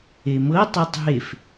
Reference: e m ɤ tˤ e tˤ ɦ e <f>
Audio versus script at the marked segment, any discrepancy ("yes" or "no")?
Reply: no